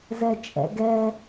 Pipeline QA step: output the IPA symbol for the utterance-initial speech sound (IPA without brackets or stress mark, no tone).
z